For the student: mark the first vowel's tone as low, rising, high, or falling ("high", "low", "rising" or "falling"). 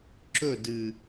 falling